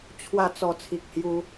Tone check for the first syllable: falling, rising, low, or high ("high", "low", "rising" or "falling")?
falling